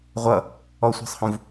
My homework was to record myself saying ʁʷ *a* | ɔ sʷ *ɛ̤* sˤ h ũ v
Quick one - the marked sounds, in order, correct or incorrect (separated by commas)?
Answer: incorrect, correct